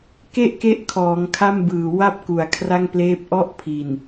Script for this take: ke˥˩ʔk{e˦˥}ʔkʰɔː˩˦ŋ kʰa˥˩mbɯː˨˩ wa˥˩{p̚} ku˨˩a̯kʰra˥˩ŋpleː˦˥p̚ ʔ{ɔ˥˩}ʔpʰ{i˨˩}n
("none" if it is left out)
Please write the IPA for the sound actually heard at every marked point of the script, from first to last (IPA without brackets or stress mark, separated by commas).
e˦˥, p̚, ɔ˥˩, i˨˩